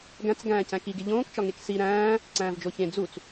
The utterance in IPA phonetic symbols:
ɡ æ̃ t͡s ɡ æ̃ː c æ̃ k i ɡ e ʎ õː k t͡ʃ ɒ ŋ e k s i ɾ æ̃ː | ǀ æ̃ː v d͡ʒ o ç ẽ d͡z u t͡s

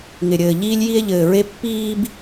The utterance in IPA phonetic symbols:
ŋ ɪ˧ ɾʲ ɘː˧ ʎ iː˥ lʲ j i˥ e̯ ʎ ɘː˧ ɹ e˥ pː iː˥ b

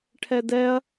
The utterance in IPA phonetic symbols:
ʈʰ ɛ d ɛ ɐ̯

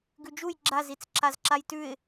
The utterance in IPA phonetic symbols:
ɡ ʉ d͡ʒ u j ɡ͡ǁ a z i t͡s ǁ a z ǁ a j t ʉ ɪ̯

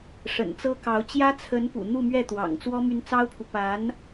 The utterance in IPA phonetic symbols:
ʂ ə̰˨˩ n t͡s ɤ˥ k ɑ˧˥ ʊ̯ t͡ɕ j ä˥ t͡sʰ ə˧˥ n p ṵ˨˩ n̪ u˥˧ m ɥ ɛ˥˩ t̪ w ɑ̰˨˩ ŋ t͡s w ɔ˥ m y˧˥ n t͡s ɑ˥ ʊ̯ pʰ u˨ p a˧˥ n

